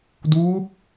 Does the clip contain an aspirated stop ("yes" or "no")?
no